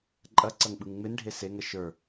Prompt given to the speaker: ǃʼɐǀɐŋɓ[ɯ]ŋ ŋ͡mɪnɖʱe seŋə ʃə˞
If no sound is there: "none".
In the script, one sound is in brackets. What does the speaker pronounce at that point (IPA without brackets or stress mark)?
ɯ